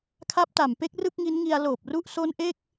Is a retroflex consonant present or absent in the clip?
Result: absent